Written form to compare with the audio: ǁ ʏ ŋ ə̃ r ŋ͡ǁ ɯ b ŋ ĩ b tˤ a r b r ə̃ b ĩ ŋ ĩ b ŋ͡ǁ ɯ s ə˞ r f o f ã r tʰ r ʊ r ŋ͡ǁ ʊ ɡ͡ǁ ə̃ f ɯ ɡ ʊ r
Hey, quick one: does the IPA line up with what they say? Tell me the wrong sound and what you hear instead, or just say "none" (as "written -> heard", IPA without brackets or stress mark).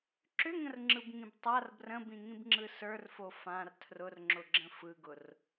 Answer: none